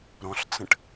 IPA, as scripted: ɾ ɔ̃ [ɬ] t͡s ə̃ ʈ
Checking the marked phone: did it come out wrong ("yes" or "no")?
no